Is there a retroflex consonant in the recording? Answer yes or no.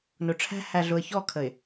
yes